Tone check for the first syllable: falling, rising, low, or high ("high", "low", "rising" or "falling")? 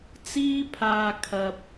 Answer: high